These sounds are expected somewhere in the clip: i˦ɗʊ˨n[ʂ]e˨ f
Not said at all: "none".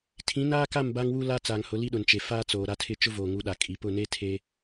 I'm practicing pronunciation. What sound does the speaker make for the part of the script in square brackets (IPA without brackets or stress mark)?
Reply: t͡ʃ